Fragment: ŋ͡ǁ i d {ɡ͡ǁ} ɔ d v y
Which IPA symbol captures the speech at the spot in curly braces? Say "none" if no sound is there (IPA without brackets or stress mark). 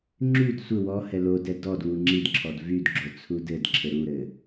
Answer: ǁʰ